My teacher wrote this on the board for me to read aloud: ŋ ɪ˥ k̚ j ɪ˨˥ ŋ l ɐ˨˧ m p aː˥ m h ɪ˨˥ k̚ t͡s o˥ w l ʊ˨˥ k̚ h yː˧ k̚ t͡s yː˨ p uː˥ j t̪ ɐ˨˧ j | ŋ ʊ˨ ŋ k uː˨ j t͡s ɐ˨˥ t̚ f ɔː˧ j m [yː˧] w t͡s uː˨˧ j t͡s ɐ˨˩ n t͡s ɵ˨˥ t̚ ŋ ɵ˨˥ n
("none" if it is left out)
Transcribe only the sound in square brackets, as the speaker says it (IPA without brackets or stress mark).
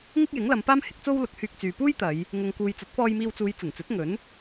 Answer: iː˧